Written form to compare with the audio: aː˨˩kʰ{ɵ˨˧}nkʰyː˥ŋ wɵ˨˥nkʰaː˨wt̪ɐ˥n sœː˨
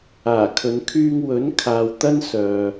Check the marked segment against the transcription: correct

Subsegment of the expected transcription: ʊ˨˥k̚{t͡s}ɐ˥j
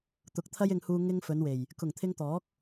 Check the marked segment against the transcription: incorrect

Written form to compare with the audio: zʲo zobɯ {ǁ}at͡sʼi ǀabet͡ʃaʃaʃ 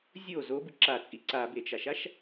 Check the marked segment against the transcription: correct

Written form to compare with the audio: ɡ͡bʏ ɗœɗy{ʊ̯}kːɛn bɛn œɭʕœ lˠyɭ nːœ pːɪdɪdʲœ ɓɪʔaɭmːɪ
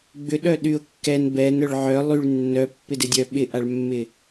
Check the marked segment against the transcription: correct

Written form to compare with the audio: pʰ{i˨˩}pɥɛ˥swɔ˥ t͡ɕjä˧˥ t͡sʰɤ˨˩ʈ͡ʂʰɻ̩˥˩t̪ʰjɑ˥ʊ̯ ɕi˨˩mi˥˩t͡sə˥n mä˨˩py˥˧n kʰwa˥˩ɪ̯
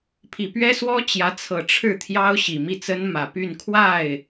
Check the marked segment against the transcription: correct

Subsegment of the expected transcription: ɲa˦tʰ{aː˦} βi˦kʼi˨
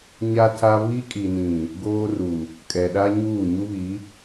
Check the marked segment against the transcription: incorrect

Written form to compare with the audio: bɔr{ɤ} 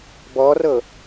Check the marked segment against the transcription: correct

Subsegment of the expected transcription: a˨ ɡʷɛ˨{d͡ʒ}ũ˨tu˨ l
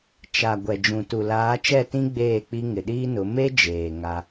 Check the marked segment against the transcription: correct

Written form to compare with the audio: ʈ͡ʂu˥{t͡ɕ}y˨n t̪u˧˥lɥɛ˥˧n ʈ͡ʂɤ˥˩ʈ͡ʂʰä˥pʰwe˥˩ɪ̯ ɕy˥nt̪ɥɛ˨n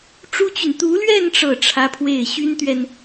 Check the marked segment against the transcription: correct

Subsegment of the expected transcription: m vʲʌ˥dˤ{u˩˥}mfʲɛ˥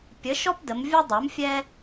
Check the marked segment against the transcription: correct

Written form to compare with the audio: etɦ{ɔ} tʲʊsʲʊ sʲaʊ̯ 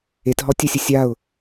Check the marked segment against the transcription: correct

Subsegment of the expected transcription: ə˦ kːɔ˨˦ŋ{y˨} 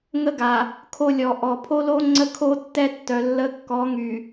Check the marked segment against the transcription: correct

